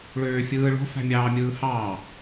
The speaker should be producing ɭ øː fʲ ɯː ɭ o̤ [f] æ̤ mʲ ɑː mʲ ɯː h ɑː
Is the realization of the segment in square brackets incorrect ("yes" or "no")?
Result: no